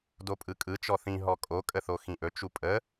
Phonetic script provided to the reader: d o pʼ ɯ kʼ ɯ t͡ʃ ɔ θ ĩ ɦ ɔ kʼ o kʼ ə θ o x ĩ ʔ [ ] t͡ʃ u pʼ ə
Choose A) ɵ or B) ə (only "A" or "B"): A